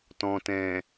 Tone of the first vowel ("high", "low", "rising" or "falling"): low